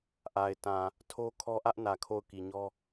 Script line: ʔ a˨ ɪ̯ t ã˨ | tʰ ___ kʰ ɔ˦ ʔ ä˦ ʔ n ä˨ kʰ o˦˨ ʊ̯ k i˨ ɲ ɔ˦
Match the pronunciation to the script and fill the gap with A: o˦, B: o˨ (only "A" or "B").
A